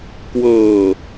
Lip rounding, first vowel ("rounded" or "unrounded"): unrounded